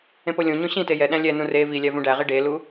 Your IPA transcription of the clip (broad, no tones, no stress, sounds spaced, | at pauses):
ẽ p o lʲ õ ɲ õ ɕ ĩ t e j ɛ ɗ æ̃ lʲ ɛ n ũ r e v i lʲ æ v ũ ɖ æ ʁ i ɖ e l u